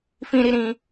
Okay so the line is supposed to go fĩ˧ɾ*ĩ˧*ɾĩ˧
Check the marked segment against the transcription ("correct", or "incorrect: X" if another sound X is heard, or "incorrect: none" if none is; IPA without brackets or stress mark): incorrect: i˧